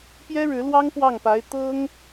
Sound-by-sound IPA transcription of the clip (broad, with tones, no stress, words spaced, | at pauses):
pjɛ˥ɻɻ̩˧˥lwɑ˥ŋ pwɑ˥˩ŋpa˧˥ɪ̯ t̪ɤ˥ŋ